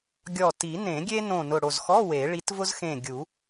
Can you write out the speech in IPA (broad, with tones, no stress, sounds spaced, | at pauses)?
ɡʲ ɔ˧˩ t i˨˩˦ n ẽ˨˩˦ ɡʲ e˥ n õ˧˩ n ʊ˧˩ ɽ o˧˩ z x ɔ˧˥˧ w e˨˩˦ ɭ i˨˥ t v ʊ˥ z x ẽ˧˩ ɡʲ u˨˩˦